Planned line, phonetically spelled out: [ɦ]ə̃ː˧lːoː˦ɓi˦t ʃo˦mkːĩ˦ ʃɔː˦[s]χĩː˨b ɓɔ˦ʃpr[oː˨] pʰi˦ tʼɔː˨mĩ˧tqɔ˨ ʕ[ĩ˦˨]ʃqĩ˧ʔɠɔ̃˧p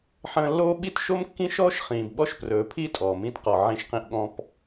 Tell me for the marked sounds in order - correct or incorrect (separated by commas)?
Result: incorrect, incorrect, incorrect, incorrect